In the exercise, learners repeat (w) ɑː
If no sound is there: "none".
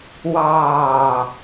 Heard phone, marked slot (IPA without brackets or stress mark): w